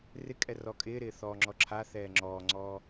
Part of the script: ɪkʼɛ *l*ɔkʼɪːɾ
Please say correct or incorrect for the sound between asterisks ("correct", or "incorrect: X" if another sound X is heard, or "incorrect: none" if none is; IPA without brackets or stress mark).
incorrect: r